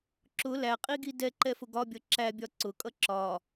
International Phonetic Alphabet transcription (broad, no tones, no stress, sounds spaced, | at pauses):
ǁ ʊ l æ qʼ i ɡ i d ɛ ǃ ɛ f ʊ ɡ ɒ bʲ ʌ ǁ æ bʲ ɒ ǀ ʊ kʼ ʌ ǁ ɒ